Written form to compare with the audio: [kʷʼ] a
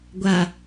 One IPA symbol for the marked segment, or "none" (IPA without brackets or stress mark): ɡʷ